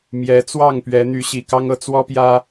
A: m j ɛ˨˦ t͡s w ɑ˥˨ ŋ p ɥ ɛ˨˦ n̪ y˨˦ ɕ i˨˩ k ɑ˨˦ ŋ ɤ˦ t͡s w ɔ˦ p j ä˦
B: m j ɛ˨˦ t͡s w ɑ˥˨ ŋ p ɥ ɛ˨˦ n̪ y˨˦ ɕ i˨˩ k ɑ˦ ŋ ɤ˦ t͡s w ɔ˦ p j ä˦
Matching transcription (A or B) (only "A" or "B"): B